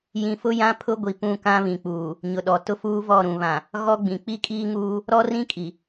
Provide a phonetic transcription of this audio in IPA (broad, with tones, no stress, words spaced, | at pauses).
jĩ˨fʊ˦ jã˦pʰʊ˦ ɡʷi˨pũ˦˨kã˦ βĩ˨k͡puː˨ | ɲʊ˨ɗɔ˨ tʊ˦fuː˦vɔ˦˨ ɾũ˨βã˨ | ɣɔ˦ɡ͡bĩ˨ k͡pi˦kʼiː˦ŋuː˦ | ɾɔ˦rĩ˦ kʼi˨